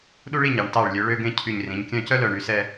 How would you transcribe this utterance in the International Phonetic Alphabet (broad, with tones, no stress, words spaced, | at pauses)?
ɗu˥ɭi˥˧ɲɑ˩˧ɳ tɑ˧˩ɭlʲø˩˧ɭø˧ɡẽ˧ cʰy˧˩ɲrĩ˩˧ɲkʲœ̃˥˧ cœ˥lœ˧˩ ɳy˩˧sɛ˥˧